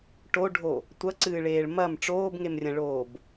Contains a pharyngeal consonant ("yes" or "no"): no